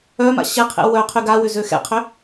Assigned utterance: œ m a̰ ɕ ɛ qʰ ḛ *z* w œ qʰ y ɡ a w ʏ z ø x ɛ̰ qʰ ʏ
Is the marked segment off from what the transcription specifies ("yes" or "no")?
yes